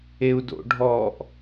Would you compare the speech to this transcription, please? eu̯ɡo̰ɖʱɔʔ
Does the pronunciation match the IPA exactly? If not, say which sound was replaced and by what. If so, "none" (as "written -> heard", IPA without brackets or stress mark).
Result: ɡ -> d